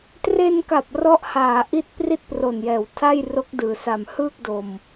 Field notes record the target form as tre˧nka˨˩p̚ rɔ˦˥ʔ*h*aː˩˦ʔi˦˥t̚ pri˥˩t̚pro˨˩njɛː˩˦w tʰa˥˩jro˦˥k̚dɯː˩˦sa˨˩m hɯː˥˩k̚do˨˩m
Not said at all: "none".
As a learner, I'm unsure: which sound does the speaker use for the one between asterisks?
h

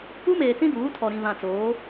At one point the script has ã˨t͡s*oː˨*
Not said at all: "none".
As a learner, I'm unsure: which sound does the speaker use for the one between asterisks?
oː˨˦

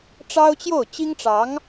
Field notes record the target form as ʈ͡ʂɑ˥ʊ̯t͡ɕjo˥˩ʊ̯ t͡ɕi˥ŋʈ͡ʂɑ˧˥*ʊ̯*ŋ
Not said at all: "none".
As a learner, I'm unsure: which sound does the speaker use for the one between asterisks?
none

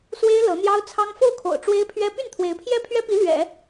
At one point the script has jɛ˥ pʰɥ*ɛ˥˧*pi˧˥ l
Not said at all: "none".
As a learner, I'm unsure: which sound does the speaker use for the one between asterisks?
ɛ˥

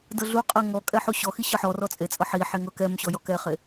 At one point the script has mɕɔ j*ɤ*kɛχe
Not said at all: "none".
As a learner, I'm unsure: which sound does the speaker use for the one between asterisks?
ɔ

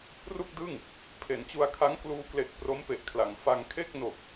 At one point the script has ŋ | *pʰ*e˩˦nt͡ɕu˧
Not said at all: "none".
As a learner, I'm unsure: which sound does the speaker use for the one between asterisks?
pʰ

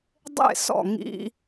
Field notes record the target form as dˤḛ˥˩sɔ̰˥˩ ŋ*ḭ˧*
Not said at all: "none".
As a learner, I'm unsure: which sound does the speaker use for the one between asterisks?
ḭ˧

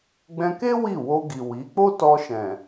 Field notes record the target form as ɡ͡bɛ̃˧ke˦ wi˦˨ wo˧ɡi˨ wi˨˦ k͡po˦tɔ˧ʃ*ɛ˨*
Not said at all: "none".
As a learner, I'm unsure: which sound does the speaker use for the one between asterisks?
ɛ̃˨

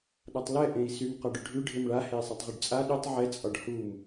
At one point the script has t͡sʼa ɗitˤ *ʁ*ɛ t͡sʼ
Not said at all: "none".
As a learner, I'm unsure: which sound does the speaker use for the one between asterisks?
ʕ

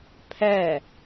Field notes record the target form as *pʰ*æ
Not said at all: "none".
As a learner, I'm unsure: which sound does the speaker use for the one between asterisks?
pʰ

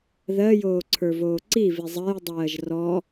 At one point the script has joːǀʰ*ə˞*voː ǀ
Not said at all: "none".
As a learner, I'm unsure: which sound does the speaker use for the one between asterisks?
ə˞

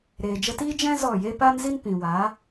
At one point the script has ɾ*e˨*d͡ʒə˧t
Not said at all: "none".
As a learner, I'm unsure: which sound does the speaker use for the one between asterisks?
eː˨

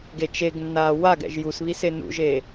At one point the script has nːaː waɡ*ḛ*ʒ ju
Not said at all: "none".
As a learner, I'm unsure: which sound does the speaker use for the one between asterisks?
ɛ̰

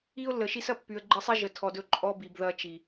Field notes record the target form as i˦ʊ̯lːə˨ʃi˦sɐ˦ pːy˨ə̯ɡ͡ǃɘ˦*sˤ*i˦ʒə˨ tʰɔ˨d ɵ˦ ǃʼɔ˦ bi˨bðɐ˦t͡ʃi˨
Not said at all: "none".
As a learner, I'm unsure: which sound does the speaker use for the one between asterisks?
sˤ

